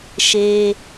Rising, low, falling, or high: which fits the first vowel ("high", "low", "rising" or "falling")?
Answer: high